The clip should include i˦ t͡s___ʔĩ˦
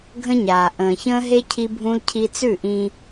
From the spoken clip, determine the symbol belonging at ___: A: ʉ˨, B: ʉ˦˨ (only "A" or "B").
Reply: B